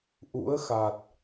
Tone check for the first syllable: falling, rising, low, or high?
rising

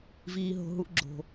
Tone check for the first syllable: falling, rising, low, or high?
high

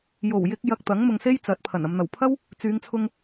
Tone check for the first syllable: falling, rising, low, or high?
low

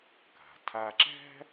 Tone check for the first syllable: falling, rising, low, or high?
low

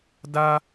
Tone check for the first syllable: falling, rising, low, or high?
high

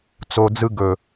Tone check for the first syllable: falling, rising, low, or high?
low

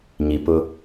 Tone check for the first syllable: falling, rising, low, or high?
low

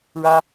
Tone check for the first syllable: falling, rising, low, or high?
high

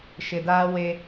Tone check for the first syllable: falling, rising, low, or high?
low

